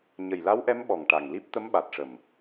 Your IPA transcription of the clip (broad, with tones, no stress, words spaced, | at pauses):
ɲə˨˩jla˧˥wʔɛ˧˥m ɓɔ˨˩ŋʈa˨˩ŋli˦˥p̚ t̪ə˧˥mɓa˨˩t̚ʂə˨˩m